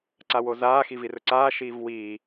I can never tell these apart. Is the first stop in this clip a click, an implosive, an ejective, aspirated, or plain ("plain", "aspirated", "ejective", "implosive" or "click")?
click